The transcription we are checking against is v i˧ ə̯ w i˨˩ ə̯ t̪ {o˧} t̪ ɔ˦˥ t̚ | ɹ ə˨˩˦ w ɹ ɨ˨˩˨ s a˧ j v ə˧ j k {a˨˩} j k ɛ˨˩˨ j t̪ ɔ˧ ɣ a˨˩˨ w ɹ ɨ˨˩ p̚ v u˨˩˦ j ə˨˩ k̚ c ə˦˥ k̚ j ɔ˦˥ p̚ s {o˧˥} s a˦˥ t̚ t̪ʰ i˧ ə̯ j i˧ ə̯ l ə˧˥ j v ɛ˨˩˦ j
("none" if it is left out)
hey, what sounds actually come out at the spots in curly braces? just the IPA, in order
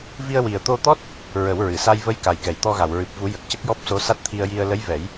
o˧, a˨˩, o˧˥

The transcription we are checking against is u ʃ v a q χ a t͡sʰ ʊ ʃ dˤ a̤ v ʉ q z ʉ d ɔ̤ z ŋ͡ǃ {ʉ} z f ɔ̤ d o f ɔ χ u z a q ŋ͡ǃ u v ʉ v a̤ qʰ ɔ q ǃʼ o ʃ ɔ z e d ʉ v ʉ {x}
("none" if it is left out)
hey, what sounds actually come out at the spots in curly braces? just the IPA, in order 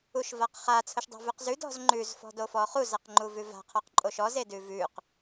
ʉ, q

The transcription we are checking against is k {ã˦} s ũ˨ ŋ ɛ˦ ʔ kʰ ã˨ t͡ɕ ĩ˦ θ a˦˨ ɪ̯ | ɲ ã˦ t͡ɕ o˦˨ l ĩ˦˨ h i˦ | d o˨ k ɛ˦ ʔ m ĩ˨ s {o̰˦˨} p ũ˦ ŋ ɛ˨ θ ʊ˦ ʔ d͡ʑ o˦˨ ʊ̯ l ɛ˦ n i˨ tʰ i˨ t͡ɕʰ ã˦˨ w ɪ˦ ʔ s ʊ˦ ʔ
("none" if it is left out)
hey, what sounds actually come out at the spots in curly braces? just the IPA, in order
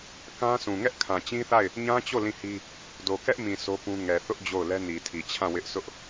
ã˦, o˦

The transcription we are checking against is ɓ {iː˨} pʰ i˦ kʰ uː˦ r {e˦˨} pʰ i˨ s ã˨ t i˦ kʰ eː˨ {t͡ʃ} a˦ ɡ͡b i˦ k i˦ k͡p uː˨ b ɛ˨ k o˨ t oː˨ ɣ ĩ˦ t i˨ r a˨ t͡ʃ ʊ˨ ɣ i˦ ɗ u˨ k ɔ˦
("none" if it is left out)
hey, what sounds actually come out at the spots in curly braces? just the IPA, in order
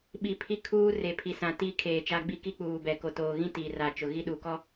i˨, e˨, t͡ʃ

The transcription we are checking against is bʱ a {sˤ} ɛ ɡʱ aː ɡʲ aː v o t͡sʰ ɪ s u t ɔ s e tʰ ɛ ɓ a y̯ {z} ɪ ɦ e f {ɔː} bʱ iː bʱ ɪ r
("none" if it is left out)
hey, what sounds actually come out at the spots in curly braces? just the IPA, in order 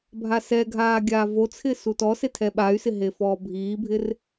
s, s, ɔː

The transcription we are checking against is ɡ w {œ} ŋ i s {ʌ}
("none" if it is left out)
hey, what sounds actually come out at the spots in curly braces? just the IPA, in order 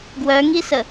œ, ə

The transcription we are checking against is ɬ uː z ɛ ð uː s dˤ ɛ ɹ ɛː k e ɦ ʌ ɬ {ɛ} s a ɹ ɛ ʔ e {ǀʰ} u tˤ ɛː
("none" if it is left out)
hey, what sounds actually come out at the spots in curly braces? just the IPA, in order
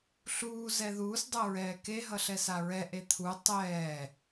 ɛ, t̪ʰ

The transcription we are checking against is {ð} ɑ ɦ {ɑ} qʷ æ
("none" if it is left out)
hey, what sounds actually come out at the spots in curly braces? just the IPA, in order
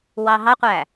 w, ɑ

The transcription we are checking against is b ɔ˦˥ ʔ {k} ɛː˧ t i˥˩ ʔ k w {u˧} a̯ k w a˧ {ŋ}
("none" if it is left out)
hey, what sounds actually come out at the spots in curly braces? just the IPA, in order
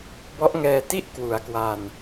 ŋ, u˩˦, n

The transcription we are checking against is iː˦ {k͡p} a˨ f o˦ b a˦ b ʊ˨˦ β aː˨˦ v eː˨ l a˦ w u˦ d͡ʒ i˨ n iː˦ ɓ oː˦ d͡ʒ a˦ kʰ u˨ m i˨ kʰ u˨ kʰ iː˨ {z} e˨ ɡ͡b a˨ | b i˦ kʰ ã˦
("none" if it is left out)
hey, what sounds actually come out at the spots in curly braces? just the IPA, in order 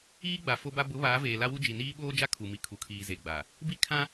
ɡ͡b, z

